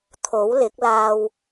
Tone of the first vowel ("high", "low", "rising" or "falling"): rising